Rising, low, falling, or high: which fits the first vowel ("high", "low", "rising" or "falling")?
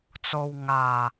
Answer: low